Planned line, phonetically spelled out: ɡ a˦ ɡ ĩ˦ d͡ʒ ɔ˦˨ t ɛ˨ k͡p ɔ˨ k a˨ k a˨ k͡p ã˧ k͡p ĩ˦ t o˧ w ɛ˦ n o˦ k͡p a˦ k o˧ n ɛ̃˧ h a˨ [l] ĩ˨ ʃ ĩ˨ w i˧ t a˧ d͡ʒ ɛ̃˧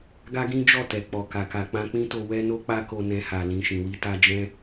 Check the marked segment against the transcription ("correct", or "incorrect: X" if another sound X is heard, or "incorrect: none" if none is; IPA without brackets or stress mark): correct